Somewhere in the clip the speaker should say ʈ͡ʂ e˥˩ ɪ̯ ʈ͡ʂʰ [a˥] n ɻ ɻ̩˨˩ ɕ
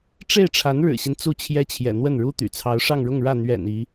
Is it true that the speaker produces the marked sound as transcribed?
no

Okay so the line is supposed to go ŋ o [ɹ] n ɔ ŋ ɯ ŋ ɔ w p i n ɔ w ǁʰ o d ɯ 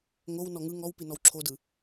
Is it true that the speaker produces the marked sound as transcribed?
no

